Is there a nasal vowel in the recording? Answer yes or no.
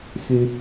no